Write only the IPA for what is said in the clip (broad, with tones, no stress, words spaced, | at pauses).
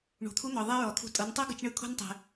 ɳṳ˩t̪ʰu˧˥n̪ɔ˩ ðˤɛ˥ɹɔ˩t̪ʰṳ˧ tʼɤ˩˧ntˤɤ˥ ɡɯ˧t͡ʃɳɯ˧˥kʰo̤˥n tˤɛ̤˩